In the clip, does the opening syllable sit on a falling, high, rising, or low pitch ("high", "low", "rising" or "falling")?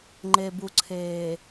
low